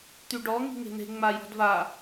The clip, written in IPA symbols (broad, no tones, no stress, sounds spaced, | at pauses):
t̪ y ɖ ɔ ŋ i̤ ŋ e̤ n̪ e̤ ŋ͡m a j ɔ̤ d v a